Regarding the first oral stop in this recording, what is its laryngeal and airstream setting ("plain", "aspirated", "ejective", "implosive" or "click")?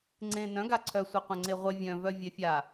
click